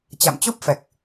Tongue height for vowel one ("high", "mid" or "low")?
low